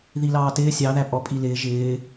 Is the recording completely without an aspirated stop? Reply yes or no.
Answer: yes